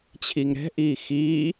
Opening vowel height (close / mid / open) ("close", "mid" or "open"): close